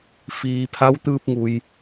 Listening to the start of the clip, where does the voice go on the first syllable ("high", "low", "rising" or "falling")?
low